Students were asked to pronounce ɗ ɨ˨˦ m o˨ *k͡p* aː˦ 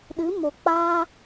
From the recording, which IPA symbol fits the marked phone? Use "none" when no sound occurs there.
k͡p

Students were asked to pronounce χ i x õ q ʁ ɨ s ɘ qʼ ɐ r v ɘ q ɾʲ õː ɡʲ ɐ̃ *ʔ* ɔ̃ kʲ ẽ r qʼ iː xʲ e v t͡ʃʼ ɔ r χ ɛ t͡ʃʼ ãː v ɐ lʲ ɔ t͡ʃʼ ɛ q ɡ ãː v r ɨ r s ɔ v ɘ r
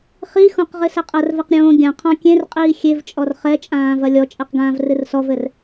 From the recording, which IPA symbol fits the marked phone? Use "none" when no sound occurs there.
qʰ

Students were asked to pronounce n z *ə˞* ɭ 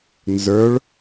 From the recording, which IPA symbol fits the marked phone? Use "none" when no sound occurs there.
ə˞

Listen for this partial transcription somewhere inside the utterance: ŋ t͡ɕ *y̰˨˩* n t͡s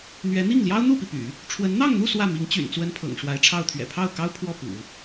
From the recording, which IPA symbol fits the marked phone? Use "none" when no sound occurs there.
y̰˨˩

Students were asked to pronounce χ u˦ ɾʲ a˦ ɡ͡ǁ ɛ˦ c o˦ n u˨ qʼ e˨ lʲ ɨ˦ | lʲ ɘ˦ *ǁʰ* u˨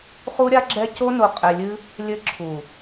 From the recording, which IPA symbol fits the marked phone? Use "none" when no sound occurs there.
ǁʰ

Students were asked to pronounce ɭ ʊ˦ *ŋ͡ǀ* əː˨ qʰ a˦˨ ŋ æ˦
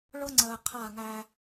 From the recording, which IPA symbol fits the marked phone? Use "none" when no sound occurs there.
ŋ͡ǀ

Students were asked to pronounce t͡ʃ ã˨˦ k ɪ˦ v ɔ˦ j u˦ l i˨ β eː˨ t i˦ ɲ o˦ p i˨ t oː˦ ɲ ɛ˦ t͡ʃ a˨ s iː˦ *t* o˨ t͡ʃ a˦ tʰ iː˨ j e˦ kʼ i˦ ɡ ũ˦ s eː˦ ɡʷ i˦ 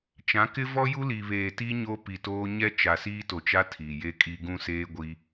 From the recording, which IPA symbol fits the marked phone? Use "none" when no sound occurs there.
t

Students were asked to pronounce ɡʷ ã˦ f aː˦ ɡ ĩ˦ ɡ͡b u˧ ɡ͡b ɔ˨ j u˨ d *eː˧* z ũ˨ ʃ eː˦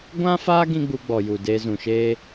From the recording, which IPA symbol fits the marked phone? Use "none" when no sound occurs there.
eː˧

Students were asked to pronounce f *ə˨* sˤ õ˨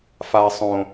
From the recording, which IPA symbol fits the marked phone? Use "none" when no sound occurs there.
a˨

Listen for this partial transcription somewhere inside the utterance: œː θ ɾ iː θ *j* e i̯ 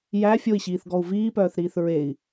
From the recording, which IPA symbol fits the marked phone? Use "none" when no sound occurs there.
ɹ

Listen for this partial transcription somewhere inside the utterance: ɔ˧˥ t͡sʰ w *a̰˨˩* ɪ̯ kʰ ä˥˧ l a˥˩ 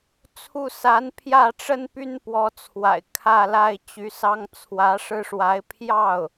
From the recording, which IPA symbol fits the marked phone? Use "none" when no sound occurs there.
a̰˨˩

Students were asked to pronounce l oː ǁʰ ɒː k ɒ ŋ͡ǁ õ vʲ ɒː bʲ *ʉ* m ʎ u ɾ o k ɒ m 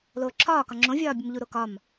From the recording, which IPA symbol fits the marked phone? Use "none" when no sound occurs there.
ə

